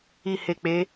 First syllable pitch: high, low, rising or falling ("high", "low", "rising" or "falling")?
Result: low